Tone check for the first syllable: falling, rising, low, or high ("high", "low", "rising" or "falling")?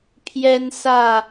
high